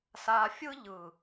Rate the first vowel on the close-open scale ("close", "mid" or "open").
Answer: open